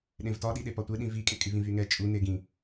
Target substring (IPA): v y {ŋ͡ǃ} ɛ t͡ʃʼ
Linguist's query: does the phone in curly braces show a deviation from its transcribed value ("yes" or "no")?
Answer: yes